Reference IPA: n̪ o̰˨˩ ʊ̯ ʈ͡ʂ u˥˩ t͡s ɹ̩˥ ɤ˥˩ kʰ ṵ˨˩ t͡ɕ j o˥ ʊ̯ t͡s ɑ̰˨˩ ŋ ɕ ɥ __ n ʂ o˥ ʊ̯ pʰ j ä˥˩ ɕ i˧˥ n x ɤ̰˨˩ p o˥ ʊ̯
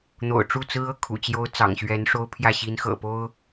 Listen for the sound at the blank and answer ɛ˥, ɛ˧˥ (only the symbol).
ɛ˧˥